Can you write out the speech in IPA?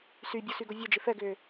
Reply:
sybʲu syɡovʲod͡ʒɪ fɛɡʏː

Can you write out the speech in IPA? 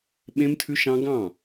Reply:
ɓẽ˦mtʰʉ˦ʃɑ̃˦ ɡɑ̃˦˨

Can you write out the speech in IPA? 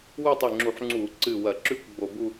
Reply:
wɵ˥˧ tˤi˧˩ŋ͡ǁu˧˩˧ħ ŋ͡ǀuː˧˩˧ǀɨː˧˩ wɐ˧˩˧ǁʉ˥˩kʷ ɡ͡bo˧˩˧bu˥˧

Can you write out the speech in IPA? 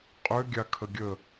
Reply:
qʼʏ ɡʲakʰəɡʲə

